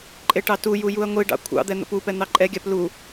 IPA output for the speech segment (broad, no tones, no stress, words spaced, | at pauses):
ǃʼeʈɑtuju juɐ̯ŋʷiɖɑ̰ kʷʰɑ̰d̪ɛ n̪ə̰pupɛ n̪ɑǃʼɛɡʲap lu